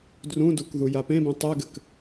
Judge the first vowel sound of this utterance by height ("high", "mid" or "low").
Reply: high